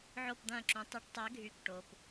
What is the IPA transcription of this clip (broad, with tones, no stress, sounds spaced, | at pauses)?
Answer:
ʕ o˥˧ p d̪ ɐ̃ː˥˧ ǁ ũ˨˥ tˤ y˨˥ ʈ tˤ ɛ˨˥ ɡʱ y˨˥ k ʈ o˩˧˩ p